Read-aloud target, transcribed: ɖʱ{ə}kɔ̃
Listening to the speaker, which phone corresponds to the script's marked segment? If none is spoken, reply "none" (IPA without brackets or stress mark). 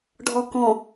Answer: ɔ